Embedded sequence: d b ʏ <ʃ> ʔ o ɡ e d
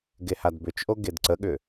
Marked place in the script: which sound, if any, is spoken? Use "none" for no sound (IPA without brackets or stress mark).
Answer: t͡ʃ